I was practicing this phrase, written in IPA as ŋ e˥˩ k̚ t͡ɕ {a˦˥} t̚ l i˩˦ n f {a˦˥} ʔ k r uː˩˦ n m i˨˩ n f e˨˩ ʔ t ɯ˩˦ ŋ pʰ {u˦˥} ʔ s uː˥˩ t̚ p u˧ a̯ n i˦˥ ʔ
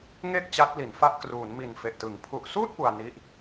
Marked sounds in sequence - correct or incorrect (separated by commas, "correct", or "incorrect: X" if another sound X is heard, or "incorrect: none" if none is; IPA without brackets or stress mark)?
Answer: correct, correct, incorrect: u˨˩